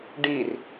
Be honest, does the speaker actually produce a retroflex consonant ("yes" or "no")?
yes